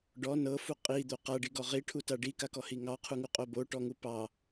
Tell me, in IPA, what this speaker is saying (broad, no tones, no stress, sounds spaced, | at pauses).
ɖ ɔ n ɤ f u qʼ i d̪ o q a ɖ i ɡ ɔ ʁ i ʈʰ u t a ɖ i k a k ɔ h i ŋ ɑ qʰ u ŋ u qʼ o b o ʈ ɔ ŋ u p ɑ